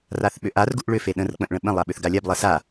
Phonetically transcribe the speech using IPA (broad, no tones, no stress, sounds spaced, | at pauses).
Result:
r a θ ɓ ʏ ʔ a r ɡ u ʔ ɭ ʏ f e ɗ ə̃ r k͡p ə̃ ʔ ɭ ə̃ ɓ ə̃ lˠ a ɓ ʏ θ ɡ a lʲ a b lˠ ɜ s a